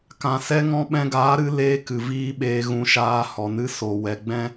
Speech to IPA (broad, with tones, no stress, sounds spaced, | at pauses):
k ã˧ s ɛ˦ ŋ ɔ̃˦ ɓ ɛ̃˧ ɡ aː˨˦ ɾ ɨ˧ l eː˧ k ɨ˨ v iː˦ ɓ eː˧ ɣ ũ˧ ʃ aː˧ h ɔ˨ n ɨ˦ s o˨ w ɛ˨ ɡ͡b ɛ̃˦